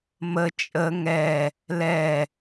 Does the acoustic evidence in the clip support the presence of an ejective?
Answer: yes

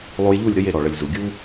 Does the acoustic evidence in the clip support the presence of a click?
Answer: no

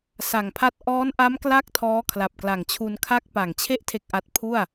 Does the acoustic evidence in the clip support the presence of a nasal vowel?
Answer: no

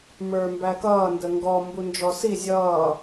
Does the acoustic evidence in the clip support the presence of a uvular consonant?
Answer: no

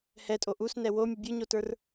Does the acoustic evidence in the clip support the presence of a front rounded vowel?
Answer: no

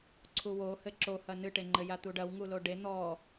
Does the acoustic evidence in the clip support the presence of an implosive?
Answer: no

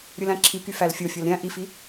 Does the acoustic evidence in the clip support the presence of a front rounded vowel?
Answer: yes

